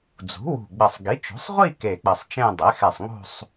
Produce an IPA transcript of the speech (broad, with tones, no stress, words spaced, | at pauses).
d͡zṳ˩˥ wṳ˧˩ɡ͡bɘ˧˩sˤ ɡi˩˥ t͡ʃo̤˩˥sˤʁʷi˥˧ ke˧˩k͡pɘ˧˩sˤt͡ʃẽ˥˧ dˤe˩˥xɛ˧˩sˤŋo̤˥˧sˤ